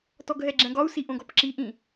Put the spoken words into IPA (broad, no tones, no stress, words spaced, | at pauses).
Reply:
tɔɡɦɛɡ͡ǁɛ̃ɡɒu̯ siʔõɡɔpǁi ʔĩ